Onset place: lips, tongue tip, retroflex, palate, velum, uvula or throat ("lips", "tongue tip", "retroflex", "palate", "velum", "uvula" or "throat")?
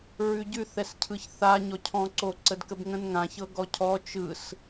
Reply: tongue tip